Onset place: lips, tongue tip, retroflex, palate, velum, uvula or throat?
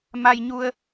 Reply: lips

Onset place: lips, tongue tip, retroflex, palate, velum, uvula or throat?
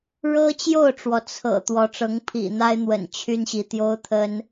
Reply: retroflex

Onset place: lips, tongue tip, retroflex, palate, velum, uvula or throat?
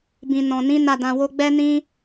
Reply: lips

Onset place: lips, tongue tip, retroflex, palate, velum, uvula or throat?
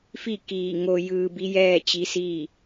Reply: lips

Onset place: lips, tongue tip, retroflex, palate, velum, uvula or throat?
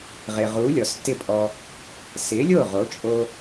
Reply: uvula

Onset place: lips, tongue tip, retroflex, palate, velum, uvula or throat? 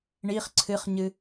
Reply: retroflex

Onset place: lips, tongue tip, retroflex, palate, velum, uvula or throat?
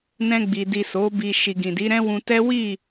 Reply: tongue tip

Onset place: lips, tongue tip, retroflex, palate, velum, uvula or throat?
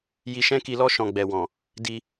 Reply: palate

